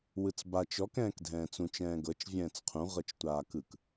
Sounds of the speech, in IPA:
w ɯ t͡s b a t͡ʃ ɔ k ɛ̃ː k dʱ ɛ̃ː t͡s ũ t͡ʃ ɛ̃ː ɡ ɤ t͡ʃ vʲ ɛ̃ː t͡s qʰ ũ ʁ ɤ t͡ʃ tʷ aː k ɯ k

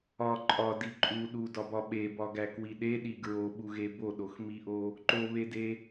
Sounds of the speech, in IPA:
ɒ ǃʼ ɒ d i ǃʼ u ɗ u d ɒ b ɒ ɓ e b ɒ ɡ æ k w i ɗ e ɗ i ɡ ɹ o ɓ u ɣ e b o ɗ o x m i ʔ o | ǃ o β e d e

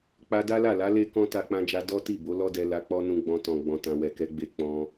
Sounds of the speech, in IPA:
k͡p a˧ d a˦ l a˦˨ l a˨˦ l e˦ k ɔ̃˦ t a˧ k͡p ã˧ d͡ʒ a˧ d ɔ˦ t i˦˨ b o˨˦ l ɔ˦ d ɛ˧ l a˧ k͡p ɔ˦ n ũ˧ ɡ͡b ɔ̃˧ t ɔ̃˨ ɡ͡b ɔ̃˧ t ã˧ w ɛ˨ k ɛ˨˦ ɡ͡b e˧ k͡p ɔ̃˧

